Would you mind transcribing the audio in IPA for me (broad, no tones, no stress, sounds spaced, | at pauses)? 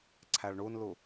ǀʰ æ ɭ ɳ u n l u